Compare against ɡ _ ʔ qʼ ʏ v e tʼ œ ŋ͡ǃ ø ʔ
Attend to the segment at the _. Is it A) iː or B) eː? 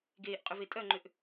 B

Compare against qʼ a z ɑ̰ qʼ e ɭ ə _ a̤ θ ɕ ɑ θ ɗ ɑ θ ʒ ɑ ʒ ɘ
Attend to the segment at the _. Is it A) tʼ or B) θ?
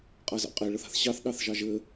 B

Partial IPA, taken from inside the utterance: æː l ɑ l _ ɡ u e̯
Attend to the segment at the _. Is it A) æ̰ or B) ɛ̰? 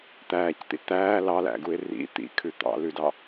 A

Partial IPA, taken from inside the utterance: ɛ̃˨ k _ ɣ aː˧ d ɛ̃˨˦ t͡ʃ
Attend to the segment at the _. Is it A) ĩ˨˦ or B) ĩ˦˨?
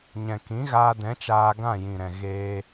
A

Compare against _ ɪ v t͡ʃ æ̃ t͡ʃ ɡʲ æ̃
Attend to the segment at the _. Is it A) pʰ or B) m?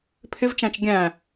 A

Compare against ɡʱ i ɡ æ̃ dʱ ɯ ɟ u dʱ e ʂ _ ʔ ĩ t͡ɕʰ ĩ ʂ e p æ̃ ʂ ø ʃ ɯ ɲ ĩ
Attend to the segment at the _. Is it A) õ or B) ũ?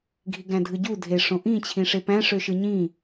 A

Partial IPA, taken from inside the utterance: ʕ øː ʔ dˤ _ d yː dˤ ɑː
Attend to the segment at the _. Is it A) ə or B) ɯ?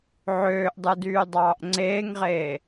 B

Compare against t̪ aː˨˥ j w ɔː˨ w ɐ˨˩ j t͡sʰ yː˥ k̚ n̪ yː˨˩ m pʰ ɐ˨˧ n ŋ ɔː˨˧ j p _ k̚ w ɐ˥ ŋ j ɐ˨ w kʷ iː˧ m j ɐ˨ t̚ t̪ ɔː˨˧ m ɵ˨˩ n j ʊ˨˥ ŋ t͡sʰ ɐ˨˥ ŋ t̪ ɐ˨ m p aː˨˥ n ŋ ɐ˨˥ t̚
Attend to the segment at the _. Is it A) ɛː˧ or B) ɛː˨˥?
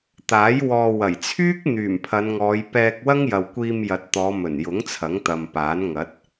A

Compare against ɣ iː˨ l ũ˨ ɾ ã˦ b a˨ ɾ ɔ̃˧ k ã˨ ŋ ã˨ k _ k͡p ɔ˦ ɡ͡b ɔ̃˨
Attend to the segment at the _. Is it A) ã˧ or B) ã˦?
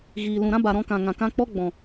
A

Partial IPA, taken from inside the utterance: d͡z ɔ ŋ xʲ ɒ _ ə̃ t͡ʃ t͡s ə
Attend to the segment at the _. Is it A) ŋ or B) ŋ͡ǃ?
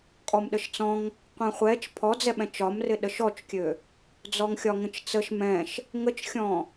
A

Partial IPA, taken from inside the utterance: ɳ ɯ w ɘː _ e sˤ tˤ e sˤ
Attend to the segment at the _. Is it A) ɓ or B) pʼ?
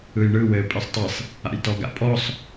B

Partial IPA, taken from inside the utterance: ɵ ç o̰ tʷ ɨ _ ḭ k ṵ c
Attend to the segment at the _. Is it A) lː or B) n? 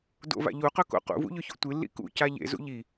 A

